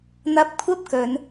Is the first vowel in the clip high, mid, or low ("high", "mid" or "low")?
low